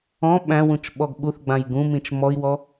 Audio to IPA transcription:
ɔ̃ ɓ æ̃ w ũ t͡ʃ ɓ ɔ ɡ ɓ u θ ɡ͡b ã j ɡ ũ m ĩ t͡ʃ m ɔ i̯ w ɔ

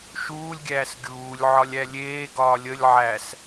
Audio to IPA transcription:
ʃ uː lʲ ɡʲ æː s ɡʲ uː lʲ ʕ ɒ lʲ æ lʲ eː ɡ ɒː lʲ ə lʲ ʕ æ s

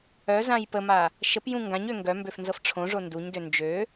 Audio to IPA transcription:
œ z ã j p ə m a | ʃ ə p j ũ ŋ ɡ ã ɲ ø ŋ ɡ œ m b ø f n z ɤ f ʈ͡ʂʰ õ ʐ o n d u ɲ d ø n d͡ʒ ø

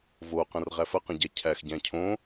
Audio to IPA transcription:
v o q ə̃ r ʁ æ f ə q ə̃ ɟ æ cʰ æ x ɟ æ̃ cʰ õ

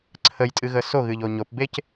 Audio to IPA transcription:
ǀʰ ə j tʼ ɨ ɣ ə s o ɣ ɨ ʎ o ɲ o p b e c

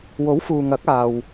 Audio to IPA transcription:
w o˨˥ w f uː˨ ŋ ɐ˨˥ k̚ aː˨ w

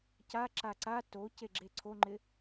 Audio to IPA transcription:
c a ǁ a ǀ a t o c e ɡ͡ǁ e ǀʰ o ŋ͡ǃ ɪ

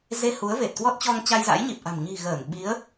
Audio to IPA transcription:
z e˧ h u˨˦ ə̯ v e˨˩ t̚ k w ɔ˦˥ t̚ t͡ɕ ɔ˧ ŋ t͡ɕ a˧ j z a̰˧˥ j ɲ i˨˩ p̚ ʔ a̤˨˩ m ɲ i̤˨˩ ɣ əː˧˩ n ɓ i˨˦ ə̯

